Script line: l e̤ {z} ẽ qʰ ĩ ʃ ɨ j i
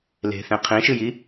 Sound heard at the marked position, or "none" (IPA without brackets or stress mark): θ